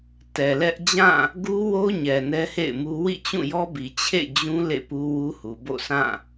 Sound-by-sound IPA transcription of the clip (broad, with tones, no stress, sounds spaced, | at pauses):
t ɛ˨ l ɛ˦ ʔ d͡ʑ ã˦˨ | ɡ u˦ w o˦ ɲ ɛ˨ n ɛ˦ h ḛ˦˨ ɪ̯ m u˦ w ḭ˦˨ t͡ɕ ũ˦˨ j ɔ˦ b i˨ t͡ɕʰ ḛ˦˨ d͡ʑ ũ˦ l ḛ˦˨ p u˦ w u˦ h u˨ b o̰˦˨ s ã˦˨